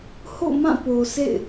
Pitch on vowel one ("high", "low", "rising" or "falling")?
falling